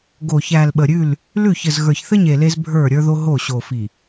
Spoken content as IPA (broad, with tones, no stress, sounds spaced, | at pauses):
ɡ o˨ ç æ˨ l ɓ ə˨ ɾʲ ʉ˦˨ l | l ʉ˦˨ ç ɘ˨ z ɣ ə˞˨ ç θ ɘ˦ ɲ e˨ l e˦ z bʱ ə˞˦˨ ɾʲ ə˞˦ ð o˦ ɦ o˦˨ ɕ o˨ f i˨